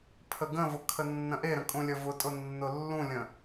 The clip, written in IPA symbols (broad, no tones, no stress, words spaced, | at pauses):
pʰəɡə̃vʊ kʰənːə̃ʔeɾə̃ kʼũlʲəvʊtʼʊ nːʊlːũlʲə̃